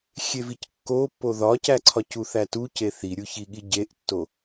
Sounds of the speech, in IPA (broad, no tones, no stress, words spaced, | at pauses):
xʲevickːopːo ðɒcæǀʰɒc uθætuce θiɾʲuçiɠi ɟeʔtːo